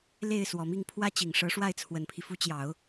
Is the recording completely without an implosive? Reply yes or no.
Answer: yes